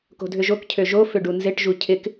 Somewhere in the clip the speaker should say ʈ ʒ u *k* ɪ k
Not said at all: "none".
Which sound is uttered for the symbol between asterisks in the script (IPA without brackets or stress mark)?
cʰ